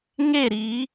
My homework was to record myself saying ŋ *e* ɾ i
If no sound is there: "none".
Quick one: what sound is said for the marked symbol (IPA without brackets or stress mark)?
e